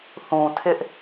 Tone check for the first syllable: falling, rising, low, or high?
low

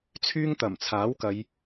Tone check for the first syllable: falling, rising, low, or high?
high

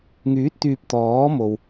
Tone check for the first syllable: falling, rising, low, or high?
rising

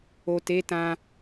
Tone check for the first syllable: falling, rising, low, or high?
low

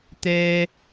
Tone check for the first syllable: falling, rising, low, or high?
high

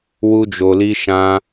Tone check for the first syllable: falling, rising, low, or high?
high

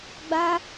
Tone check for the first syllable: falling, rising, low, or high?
high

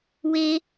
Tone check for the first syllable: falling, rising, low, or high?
high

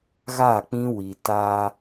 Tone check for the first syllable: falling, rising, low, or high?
falling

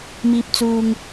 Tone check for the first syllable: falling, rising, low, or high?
low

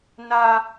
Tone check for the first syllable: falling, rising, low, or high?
high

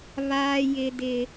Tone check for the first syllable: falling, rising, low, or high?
high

